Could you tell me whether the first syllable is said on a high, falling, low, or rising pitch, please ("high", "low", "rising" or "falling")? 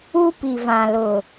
high